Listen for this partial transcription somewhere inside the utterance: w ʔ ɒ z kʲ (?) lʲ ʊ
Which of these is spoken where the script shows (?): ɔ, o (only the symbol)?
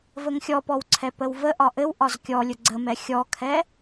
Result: ɔ